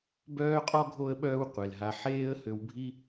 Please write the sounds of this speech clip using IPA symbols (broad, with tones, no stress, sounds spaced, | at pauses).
b œː˥ qʼ ɔ˥ ɡʱ o˦ ə̯ ɓ œː˦ w qʷ ɛ˩ l ɦ a˨ ħ eː˥ ə̯ h ø˨ w bʱ i˦